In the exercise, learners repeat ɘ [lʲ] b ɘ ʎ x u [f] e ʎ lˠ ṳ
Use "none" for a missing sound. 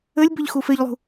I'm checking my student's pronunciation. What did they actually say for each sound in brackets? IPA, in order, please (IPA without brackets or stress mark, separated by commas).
lʲ, f